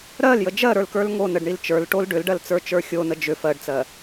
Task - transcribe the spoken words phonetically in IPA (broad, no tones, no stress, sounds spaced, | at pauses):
ɾ ɜ l j ə d͡ʒ ɜ ɾ ə˞ l k ə˞ l ŋ o n ə ɖ ɳ i l t͡ʃ ə˞ l ʈ o l ɖ ʏ l ɖ ɜ l t͡s ə˞ t͡ʃ ə˞ xʲ o n ə d͡ʒ ʏ f ɜ ɖ t͡s ɜ